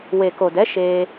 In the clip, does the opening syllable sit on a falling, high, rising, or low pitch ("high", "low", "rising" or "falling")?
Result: low